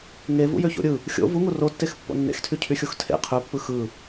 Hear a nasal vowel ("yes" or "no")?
no